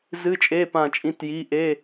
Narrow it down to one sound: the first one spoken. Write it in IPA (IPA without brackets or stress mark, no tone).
z